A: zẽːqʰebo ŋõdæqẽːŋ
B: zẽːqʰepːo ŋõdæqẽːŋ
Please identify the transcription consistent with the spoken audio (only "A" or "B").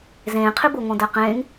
A